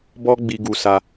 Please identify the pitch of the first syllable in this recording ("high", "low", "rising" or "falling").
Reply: high